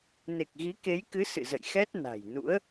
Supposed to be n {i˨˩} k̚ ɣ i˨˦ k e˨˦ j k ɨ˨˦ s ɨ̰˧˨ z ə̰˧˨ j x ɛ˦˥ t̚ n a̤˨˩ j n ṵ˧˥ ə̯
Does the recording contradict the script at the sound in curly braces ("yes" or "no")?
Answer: yes